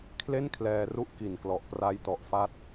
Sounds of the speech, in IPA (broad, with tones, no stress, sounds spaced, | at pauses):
kʰ l e˥˩ n kʰ l ɛː˧ r u˦˥ ʔ k i˨˩ n k l ɔ˨˩ ʔ p r a˦˥ j t ɔ˨˩ ʔ f a˦˥ t̚